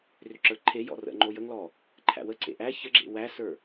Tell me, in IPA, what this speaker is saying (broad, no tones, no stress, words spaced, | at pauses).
rʏǁə˞ǃʰejɔ̰ rə̰ŋ͡ǃo jəŋlɔ | ǃʰæ̰wəǀḛ ʔæ çəɡ͡ǁḛ wæsə˞